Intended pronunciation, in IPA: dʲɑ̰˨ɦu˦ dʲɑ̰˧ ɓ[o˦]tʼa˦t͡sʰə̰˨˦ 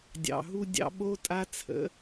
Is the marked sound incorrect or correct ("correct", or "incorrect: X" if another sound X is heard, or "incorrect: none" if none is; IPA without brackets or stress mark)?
correct